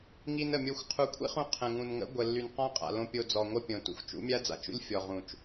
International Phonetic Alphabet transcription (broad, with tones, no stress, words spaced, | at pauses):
ŋi˧nə˨mʲo˧xʷ qʰu˨˦kʷʰḭ˦χũ˧ qʰə̃˨ ŋũ˨nŋə̰˨˦ ɡʷə˨lːy˨n qɔ̃˦qʼa̰˨lõ˧ pʲo˧d͡zɔ˨ŋʷə˦pʲõ˨ tṵ˧xʷ t͡ʃṵ˨˦mʲa˦d͡za̰˨t͡ʃṵ˦lʲ fʲɔ˨ʁũ˨t͡ʃ